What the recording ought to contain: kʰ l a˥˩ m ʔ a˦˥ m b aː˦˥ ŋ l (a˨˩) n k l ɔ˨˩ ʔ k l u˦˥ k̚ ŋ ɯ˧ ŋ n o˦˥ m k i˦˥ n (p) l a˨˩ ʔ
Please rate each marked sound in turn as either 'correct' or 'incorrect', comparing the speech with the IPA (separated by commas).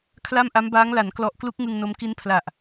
incorrect, incorrect